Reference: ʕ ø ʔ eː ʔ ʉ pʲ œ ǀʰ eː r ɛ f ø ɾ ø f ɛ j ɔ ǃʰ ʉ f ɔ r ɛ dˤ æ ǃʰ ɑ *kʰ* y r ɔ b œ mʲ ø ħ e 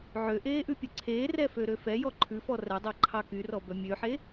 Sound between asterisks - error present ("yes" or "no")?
yes